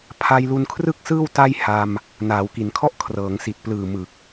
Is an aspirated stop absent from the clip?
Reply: no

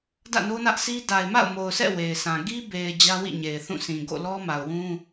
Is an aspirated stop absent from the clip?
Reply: yes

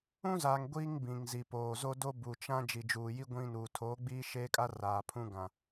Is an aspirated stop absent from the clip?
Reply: no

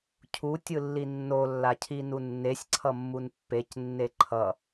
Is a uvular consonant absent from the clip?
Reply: yes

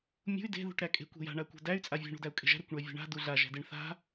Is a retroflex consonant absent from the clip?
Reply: no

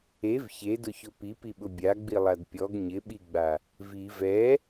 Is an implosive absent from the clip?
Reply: no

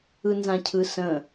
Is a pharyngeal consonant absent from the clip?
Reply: yes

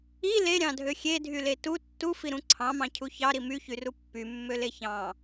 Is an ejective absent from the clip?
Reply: yes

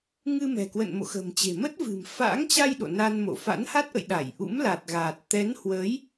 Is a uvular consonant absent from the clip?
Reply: yes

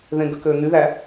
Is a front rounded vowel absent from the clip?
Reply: no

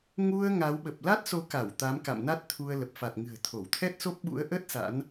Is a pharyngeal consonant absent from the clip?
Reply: yes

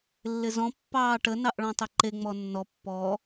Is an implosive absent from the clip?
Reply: yes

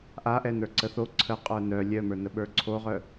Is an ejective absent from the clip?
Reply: no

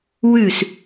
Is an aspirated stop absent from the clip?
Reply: yes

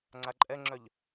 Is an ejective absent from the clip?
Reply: no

